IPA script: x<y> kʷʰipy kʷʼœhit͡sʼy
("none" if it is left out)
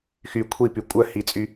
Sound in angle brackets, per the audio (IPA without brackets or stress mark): y